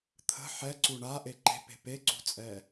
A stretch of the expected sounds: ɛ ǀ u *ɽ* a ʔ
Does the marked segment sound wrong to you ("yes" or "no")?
yes